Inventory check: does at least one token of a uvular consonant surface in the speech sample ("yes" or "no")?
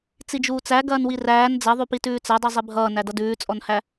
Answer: no